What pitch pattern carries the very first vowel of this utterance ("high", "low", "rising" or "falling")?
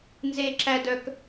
high